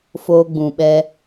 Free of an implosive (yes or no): no